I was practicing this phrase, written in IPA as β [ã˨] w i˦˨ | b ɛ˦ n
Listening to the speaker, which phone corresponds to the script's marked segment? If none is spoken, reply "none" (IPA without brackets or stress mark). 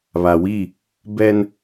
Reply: a˨